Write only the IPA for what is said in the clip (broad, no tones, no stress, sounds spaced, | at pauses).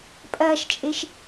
pʼ ɐː ʃ t͡ʃʼ e ʃ